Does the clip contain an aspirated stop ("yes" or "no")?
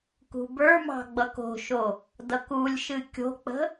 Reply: no